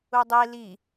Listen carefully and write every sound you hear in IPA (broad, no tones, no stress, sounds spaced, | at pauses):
u dˤ e l i